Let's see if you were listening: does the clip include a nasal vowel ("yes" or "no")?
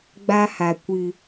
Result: no